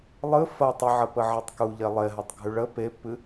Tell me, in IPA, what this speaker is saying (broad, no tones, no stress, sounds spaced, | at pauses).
lˠ ɨ f ɐ tˤ ə ʕ ɐ p ə ʕ e tˤ k u ʎ e lˠ e ɦ ɐ tˤ ɡʱ ʉ ɭ ə p e pː ɨ